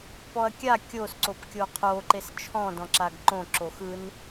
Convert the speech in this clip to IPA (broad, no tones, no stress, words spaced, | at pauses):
pɔɐ̯kʲa kʲos ǀopkʲoqʰo ǃest͡ʃʰɔ̃ dɔ̃ǁaɡǃõ ǁoxɯn